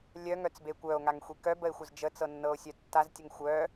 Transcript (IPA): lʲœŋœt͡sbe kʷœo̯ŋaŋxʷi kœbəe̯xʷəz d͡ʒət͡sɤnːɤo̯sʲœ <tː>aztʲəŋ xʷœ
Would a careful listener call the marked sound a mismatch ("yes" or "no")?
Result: no